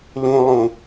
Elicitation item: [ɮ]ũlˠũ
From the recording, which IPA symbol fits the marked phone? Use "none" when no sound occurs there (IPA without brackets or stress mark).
l